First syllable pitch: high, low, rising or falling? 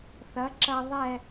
rising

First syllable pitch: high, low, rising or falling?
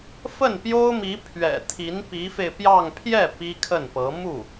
falling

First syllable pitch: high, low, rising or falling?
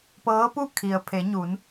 rising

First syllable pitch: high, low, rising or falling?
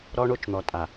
high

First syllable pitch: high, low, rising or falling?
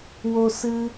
high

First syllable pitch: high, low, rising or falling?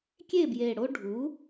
falling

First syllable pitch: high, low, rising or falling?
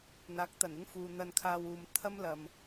rising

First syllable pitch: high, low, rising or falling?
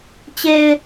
low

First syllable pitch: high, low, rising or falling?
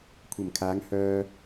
low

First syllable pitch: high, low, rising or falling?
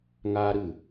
high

